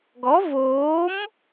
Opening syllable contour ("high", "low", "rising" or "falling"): rising